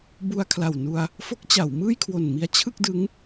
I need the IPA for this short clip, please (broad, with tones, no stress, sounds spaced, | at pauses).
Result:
b u˧ a̯ kʰ l a˨˩ w n u˧ a̯ | f o˦˥ k̚ t͡ɕ a˩˦ w m ɯː˥˩ j kʰ w o˨˩ n m i˦˥ a̯ t͡ɕʰ ɯ˥˩ k̚ d ɯ˦˥ ŋ